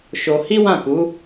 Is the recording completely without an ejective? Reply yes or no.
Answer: yes